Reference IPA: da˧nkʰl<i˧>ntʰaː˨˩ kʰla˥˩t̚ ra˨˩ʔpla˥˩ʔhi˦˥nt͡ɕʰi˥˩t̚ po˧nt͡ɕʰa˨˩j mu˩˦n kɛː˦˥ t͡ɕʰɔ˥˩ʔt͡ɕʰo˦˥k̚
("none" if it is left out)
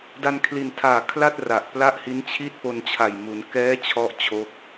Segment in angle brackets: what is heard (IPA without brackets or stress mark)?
i˨˩